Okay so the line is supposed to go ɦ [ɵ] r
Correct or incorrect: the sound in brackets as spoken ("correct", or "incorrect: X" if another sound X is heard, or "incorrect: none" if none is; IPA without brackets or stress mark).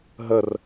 incorrect: ə